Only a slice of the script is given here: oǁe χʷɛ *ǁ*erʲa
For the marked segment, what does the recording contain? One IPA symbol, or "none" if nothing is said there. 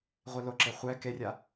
k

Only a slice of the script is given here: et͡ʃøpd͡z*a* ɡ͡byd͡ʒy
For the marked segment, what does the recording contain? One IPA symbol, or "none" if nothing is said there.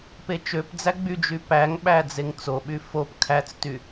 æ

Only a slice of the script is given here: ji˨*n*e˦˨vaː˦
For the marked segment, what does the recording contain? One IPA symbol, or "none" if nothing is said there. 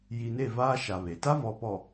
n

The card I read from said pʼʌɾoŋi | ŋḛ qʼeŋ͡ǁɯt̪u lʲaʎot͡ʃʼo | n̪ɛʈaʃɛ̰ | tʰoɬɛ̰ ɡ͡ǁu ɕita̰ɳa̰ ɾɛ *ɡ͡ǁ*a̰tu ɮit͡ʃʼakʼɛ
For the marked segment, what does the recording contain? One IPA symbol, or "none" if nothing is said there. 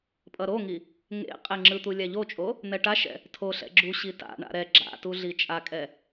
ɡ͡ǁ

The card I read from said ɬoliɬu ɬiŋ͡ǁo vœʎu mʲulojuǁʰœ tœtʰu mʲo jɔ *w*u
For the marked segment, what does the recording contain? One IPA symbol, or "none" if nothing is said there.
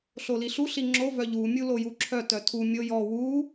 w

